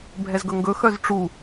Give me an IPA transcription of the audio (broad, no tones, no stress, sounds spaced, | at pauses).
bʱ ɛ z ɡ ɵ ŋ ɡ ɵ x œ z ʈ͡ʂ u